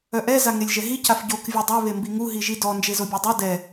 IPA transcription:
œ ʔ ɛ z a ŋ e lʲ ʒ ɛ ɦ i c a f ɟ o k vʲ a dˤ ø β e m b i ŋ u ɦ i ʒ i d ɔ n d͡ʒ e z o bʲ œ dˤ o d ɛ

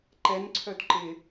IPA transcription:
ǃ ɛ n ǀʰ œ d ǃ ɪ

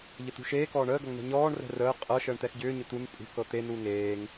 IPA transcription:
ʎ ə t̪ ṳ ʃ eː k ɔː ɳ əː ɡ ʌ ŋ n ɛ̤ ɲ ɔː ɳ r ɛ̤ r əː qʼ ɤ ʃ əː ɳ t̪ ɛ x ɟ ʏː ɲ ʏ t̪ u n pʼ ṳ k ɤ t̪ e n u ŋ eː ŋ

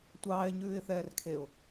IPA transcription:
tʷ ɑː ɪ̯ ɲ ʉː ɪ̯ θ ɛː r kʰ e ʊ̯

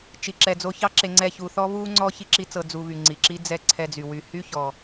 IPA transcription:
t͡ʃ i˨ ǁ ɛ˨ d͡z o˧ ç ɑ˦ ǁ e˧ ŋ͡ǀ ɛ˦˨ ç u˧ θ ɔ˦ β u˦ ŋ͡ǀ ɔ˦ ç i˦ ǁ i˦ t͡s ɤ˧ d͡z u˧ β y˨ ŋ͡ǀ i˨ ǁ i˦ d͡z ɛ˦˨ ǀʰ ɛ˧ d͡z y˨ w y˧ h y˦ ç ɔ˨

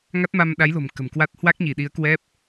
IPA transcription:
ŋ a˦˥ t̚ m a˧ m ɗ a˨˦ j l o̤˨˩ m k ə̤˨˩ m k w a˦˥ t̚ h w a˦˥ k̚ ɲ i˧˩ ɗ i˨˦ ə̯ k w ɛ˦˥ p̚

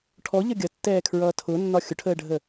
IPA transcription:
ʈʰ ɔ ʎ ʌ ɡʲ ʌ tː ɛː kʰ ɹ ʌː tʰ ʊ nː ɒ xʲ ʊ ʈʰ əː ɖʱ ə

